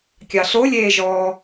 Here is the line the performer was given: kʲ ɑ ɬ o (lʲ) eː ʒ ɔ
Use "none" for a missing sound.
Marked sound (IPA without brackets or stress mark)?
lʲ